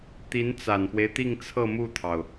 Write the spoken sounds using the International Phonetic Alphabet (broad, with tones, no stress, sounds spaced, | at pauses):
t̪ i˧˥ n t͡s a˨˩ n f w e˦ ɪ̯ t̪ i˥˧ ŋ t͡sʰ ɤ˥˧ m u˥˩ t̪ʰ ɑ˩ ʊ̯